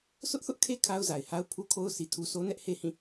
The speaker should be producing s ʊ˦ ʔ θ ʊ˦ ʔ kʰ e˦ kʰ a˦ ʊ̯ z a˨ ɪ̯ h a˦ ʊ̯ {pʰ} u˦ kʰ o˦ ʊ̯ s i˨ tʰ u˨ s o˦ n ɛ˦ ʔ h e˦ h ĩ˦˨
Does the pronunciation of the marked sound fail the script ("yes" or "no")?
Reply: no